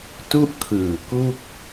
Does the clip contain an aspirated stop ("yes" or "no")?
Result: yes